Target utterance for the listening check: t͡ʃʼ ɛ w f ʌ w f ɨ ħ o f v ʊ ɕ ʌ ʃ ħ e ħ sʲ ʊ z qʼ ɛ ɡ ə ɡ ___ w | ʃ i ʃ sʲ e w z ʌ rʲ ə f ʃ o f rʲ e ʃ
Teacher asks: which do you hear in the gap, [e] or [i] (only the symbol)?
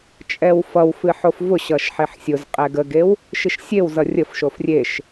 e